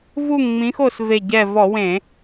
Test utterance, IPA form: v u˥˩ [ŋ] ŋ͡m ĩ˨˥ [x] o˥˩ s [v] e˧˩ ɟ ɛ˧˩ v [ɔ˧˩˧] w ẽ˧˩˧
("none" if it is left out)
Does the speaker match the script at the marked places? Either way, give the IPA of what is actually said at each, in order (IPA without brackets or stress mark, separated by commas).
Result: ŋ, x, v, ɔ˧˩˧